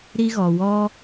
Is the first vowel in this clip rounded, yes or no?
no